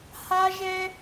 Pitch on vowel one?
high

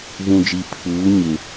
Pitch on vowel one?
low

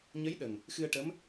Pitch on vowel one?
rising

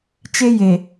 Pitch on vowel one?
high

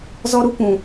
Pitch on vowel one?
high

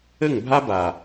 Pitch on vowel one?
falling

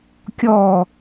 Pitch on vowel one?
falling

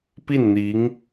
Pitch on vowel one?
falling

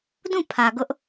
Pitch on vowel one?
falling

